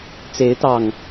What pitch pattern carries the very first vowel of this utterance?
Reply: rising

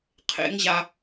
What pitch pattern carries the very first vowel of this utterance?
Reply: high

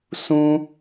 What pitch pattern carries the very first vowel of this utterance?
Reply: high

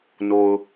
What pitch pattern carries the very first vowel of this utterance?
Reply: low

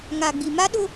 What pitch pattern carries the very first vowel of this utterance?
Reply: low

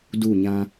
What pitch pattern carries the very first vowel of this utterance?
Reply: falling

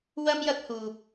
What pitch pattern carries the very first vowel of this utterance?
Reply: high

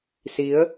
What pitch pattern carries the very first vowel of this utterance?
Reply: rising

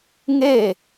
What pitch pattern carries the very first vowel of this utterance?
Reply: falling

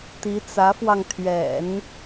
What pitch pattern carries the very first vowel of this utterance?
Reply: rising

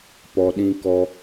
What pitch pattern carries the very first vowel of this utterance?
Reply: low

